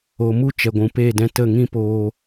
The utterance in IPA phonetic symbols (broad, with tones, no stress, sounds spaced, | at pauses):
o˨ m u˦ t͡ʃ ɛ˨ ɡʷ ũ˨ p eː˦˨ d ɛ̃˧ t ə˦˨ ŋ ĩ˦ p oː˧